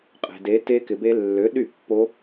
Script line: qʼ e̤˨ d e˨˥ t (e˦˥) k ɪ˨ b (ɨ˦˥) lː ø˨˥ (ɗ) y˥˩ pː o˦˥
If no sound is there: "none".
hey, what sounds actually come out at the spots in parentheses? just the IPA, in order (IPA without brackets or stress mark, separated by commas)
e˦˥, e˦˥, ɗ